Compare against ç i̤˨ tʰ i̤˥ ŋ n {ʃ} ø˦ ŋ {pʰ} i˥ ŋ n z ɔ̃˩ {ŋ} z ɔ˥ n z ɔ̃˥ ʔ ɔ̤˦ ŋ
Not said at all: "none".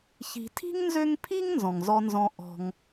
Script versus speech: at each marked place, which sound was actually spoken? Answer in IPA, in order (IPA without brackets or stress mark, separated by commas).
z, pʰ, ŋ